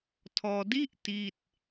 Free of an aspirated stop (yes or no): no